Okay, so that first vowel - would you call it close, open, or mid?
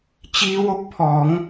close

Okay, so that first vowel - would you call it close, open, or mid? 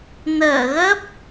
mid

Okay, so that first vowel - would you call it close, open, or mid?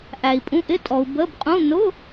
open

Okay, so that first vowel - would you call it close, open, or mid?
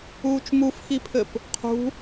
close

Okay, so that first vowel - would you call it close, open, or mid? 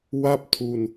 open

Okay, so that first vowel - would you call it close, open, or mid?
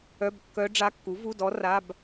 mid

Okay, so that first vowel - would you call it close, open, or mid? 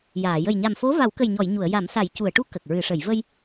open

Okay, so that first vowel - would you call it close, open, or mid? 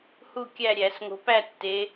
close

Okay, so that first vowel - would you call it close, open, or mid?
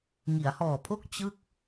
close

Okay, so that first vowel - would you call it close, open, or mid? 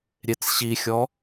mid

